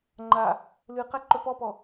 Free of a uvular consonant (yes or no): no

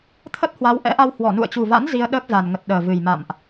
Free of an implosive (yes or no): no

